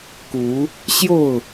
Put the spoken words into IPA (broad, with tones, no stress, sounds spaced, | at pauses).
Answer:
k u˨˦ | ɕ j o˥˨ ʊ̯